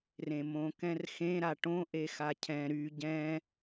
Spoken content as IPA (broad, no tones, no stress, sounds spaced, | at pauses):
r ẽ m õ k ɛ̃ r x ẽ ɾ a ʈ õ ʔ e x a cʰ ɛ̃ ɾ y ɟ ɛ̃